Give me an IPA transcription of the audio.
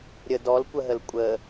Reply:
ɾʲə dɔlkʷəɦəl kʷʼə

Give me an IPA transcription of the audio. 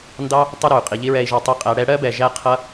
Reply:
ndɑ˦ | tˤʊ˦ɾʊ˨y̯ qʼi˨ʎi˦ɹɛ˧i̯ ʒɒ˧tˤi˧qʼæ˧ ɽɛ˧ ɽɜ˦bɛ˨ ʒæ˦ qʰʌ˦

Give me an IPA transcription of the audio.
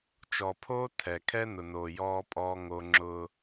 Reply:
t͡ʃɔ˨pʰoː˦ tʰɛ˨ kʰɛ˦nʊ˨noː˨ jɔː˦pʼɔː˦ ŋo˦ ŋ͡ǁʊ˦

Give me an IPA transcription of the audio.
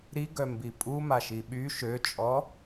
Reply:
ɾiɡœmbi pʼumaʃi ɓy ʃøt͡ʃʼɔ

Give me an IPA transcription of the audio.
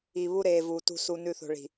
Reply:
i˨βu˦ɾeː˨vuː˨ tṳ˨ su˨nʉ˨θo̤˨ɭi̤˨

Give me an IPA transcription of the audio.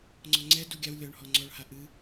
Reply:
ŋ͡ǀɔŋ͡ǀɛdu ɡʲaw lʲɔɳhɔ ŋ͡ǀɔɭha ʔɨ

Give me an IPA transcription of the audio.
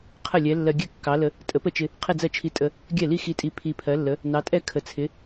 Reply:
qʰə˥˩lʲɛ˨˥ lːɜ˧ɡʲɛ˥˩ kːɑ˨˥lə˧ | tʼə˨˥ pə˥˩t͡ʃɪ˧ | qʰɪ˥˧d͡zɜ˥˩t͡ʃʰi˧tʼə˧ | ɡʲɛ˥˩li˥˧xi˧tʼi˧ pʰi˧pʰɜ˨˥lːə˨˥ | nɑ˨˥tʼɛ˥˧ kʰə˨˥t͡sʰɪ˨˥

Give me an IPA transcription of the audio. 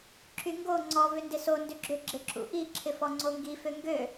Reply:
ǁyŋɡo ŋ͡ǀɔ vʏndɪso ndʏɡ͡ǁʏ ɡ͡ǁɪǁṵʔi ǁʰɪfɔŋ͡ǀoŋɡi føŋɡø

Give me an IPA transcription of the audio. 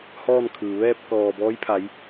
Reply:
hɔː˥˨nkʰɯː˩ ʋɛː˥˨p̚kɔː˧˩bɔː˧˥jpʰa˩˧j

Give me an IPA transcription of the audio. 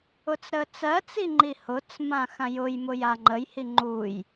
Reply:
ʊt͡sɾət͡sɜt͡si ŋ͡ǃihʊt͡smã xãjʊjmʊ jaŋ͡ǃəjhi ŋ͡ǃuj

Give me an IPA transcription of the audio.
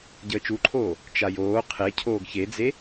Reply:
ɟəːt͡ʃuǃʰoː | t͡ʃajoː qʰe cʰoːɡçed͡ze

